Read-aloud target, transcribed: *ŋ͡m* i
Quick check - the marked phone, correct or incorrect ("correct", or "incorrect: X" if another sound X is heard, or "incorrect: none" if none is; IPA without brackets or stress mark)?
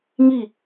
incorrect: ŋ